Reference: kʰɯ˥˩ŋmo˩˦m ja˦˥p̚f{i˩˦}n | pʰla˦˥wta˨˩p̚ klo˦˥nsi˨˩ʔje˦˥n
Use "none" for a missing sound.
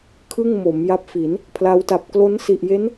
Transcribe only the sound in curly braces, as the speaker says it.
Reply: i˩˦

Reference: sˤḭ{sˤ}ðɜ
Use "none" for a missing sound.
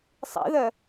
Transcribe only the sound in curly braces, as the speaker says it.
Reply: none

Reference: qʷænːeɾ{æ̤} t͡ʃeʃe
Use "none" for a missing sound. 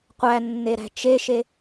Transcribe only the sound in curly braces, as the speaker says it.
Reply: æ̤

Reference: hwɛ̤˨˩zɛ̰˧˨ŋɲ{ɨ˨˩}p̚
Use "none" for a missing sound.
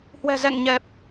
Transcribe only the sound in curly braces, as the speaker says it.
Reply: ɛ˨˩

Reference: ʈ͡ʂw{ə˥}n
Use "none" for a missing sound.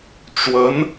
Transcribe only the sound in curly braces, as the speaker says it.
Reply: ə˧˥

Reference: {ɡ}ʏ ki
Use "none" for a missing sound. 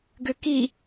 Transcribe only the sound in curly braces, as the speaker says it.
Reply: ɡ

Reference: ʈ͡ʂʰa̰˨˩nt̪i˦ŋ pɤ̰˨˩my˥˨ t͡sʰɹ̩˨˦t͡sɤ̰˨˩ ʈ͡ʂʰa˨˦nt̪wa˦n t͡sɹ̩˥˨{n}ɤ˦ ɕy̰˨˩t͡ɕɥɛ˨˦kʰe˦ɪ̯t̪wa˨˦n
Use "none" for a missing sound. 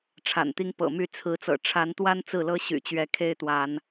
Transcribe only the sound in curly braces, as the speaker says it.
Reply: l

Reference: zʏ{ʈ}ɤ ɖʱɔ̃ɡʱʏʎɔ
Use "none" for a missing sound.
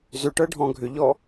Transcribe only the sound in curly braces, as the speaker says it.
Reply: ʈ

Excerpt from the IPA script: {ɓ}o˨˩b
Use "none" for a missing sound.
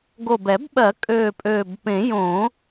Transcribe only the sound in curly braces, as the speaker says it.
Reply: ɡ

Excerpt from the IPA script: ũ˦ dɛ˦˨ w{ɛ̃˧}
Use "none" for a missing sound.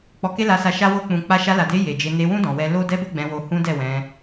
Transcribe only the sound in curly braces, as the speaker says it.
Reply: ɛ̃˧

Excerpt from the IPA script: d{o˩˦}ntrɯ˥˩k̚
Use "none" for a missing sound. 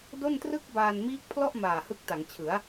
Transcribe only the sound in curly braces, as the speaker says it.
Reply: o˥˩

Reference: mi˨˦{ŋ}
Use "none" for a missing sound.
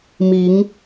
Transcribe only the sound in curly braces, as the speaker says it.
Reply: ŋ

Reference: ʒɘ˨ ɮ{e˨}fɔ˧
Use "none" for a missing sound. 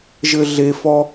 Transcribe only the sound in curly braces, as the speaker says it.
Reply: e˨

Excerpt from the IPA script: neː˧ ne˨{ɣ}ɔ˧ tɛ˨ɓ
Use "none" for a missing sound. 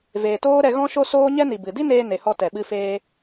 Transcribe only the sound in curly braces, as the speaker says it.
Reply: h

